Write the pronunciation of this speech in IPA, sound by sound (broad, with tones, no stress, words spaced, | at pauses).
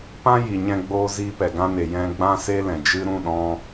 pã˦ji˨ɲɛ̃˧ɡ͡boː˧ ziː˧pɛ˨ɡã˧ne˨ jɛ̃˧ɡ͡bã˦ se˦lɛ̃˨d͡ʒɨ˦ ɾũ˦˨ɗɔ̃˧